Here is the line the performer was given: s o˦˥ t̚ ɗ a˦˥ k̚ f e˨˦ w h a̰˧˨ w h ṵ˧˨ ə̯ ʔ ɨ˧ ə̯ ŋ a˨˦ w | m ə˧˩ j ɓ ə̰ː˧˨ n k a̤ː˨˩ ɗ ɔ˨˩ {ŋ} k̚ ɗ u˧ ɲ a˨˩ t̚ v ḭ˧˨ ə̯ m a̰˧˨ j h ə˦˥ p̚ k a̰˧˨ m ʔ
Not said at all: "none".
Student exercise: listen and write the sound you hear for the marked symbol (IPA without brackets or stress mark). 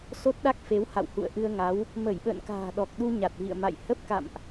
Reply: none